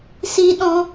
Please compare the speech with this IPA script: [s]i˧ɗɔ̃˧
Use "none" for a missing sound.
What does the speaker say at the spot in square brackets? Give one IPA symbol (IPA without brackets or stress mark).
s